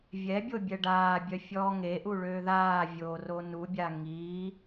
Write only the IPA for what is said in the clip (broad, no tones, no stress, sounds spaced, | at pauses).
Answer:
vʲ ɛ bʲ o bʲ ɛ ɖ aː bʲ œ fʲ ɔː ŋ e ʔ u ɭ øː ð aː vʲ oː r o n u bʲ a ŋ i